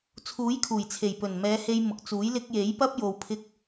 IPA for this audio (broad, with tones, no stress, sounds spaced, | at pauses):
t͡sʰ uː˨˥ j kʰ uː˨˩ j t͡sʰ e˨˩ j p ɵ˨˩ n m ɛː˨˧ h e˧ j m ʊ˨ k̚ t͡s uː˨˥ j l ɪ˧ k̚ j e˨˥ j p ɐ˥ p̚ j o˧ w pʰ ɪ˥ k̚